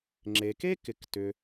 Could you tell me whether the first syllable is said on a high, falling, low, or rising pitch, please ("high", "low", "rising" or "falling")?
low